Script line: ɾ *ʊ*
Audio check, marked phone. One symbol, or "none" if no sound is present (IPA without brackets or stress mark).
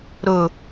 ʊ